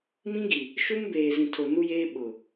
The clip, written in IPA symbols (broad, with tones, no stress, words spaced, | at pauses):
mĩ˦ɡi˨ | ʃu˦mbeː˨zĩ˨tʰo˨ nu˦jeː˦ ɓʊ˨